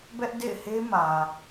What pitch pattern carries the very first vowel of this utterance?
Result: high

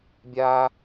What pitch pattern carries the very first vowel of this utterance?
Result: high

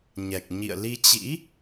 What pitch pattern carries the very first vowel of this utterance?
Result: low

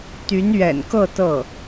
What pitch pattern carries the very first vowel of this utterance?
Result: rising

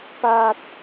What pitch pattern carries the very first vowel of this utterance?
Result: low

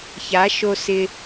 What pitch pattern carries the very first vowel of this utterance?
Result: rising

